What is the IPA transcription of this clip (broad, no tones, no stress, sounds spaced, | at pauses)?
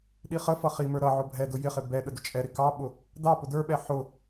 ɗ i χ ə f ʌ χ i m ə˞ ɾ ʌ ʕ ʊ bʱ ɛ d ʊ j ɪ χ ɪ b ɛ ɗ ə d ʊ t͡ʃʼ ɛ ɾ ɪ k ɑ ɓ ʊ | d ɑ p ʊ d ə˞ ɓ ɛ ħ ʊ